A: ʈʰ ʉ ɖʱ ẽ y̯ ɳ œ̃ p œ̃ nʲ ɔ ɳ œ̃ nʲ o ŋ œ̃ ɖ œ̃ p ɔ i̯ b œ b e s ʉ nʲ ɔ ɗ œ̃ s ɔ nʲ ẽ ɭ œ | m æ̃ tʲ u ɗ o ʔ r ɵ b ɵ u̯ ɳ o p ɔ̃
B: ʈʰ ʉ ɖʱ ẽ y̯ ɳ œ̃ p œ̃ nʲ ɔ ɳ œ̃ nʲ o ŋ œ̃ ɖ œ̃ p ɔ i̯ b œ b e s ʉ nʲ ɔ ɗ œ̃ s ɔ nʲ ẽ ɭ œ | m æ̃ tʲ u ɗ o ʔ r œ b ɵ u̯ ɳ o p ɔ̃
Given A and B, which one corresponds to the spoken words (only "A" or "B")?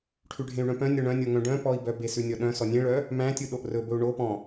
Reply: A